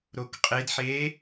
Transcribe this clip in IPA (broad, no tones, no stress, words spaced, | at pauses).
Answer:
ɾokqʼedħeː